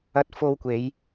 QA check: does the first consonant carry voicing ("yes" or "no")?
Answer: no